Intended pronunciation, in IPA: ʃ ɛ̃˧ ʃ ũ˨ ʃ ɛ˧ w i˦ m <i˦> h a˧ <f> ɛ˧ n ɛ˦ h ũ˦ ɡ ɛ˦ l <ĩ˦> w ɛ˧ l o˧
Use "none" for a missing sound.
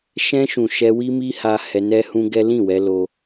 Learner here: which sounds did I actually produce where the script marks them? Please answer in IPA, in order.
i˦, h, ĩ˦˨

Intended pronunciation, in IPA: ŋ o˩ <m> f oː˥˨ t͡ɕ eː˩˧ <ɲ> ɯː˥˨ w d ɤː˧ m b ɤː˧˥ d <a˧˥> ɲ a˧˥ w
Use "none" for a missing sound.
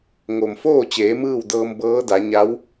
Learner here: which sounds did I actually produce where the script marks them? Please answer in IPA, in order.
m, m, a˩˧

